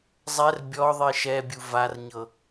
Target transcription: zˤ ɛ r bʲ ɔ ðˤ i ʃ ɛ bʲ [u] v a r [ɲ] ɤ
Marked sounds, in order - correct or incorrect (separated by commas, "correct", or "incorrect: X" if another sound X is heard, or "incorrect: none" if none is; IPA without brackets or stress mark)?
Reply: correct, correct